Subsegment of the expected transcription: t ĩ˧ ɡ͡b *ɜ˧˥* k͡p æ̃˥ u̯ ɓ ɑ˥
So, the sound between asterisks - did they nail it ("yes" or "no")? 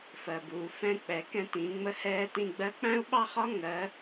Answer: yes